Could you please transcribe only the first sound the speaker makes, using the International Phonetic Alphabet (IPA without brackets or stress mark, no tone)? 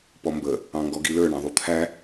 p